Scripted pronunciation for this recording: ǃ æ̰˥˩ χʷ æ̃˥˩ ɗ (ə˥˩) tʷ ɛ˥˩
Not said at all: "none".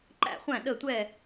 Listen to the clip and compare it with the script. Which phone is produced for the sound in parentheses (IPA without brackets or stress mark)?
ə˥˩